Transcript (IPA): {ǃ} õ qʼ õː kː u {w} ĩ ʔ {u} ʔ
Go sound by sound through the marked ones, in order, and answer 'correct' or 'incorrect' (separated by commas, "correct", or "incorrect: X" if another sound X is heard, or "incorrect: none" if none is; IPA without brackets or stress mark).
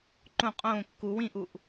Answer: correct, correct, correct